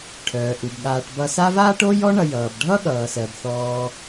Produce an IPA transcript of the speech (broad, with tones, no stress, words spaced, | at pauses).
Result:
ʈʰœː˩ʔu˩bɠaː˨ʈ bʌ˨sa˦vaː˥ʈ o˥jɔ˥ɳʌ˨ jʌː˩b ɖʱʌ˥ɠʌː˩sɜ˩b θɔː˨